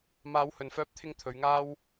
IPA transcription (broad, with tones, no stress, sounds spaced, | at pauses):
m aː˨˧ w h ɵ˨ n f œː˧ p̚ t̪ʰ ɪ˧ ŋ t̪ʰ ɵ˨˧ ɥ ŋ aː˥ w